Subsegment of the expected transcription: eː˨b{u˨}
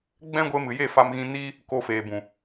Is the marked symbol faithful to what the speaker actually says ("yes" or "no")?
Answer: no